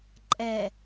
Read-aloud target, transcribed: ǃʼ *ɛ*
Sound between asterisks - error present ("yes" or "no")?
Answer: no